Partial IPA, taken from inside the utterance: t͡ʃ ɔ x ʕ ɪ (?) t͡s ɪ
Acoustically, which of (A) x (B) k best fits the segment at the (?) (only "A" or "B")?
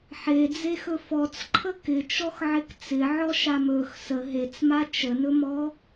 B